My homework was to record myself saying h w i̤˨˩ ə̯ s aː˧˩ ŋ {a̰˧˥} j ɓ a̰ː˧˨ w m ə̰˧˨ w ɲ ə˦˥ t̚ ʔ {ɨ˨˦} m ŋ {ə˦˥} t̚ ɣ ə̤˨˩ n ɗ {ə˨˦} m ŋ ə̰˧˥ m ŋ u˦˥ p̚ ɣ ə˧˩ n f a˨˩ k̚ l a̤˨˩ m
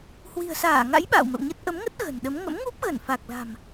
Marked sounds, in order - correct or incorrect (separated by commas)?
correct, incorrect, correct, correct